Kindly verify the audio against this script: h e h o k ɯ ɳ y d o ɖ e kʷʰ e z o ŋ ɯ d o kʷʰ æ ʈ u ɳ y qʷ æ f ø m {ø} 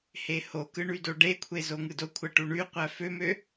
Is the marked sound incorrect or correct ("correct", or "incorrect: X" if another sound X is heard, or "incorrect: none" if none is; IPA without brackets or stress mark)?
correct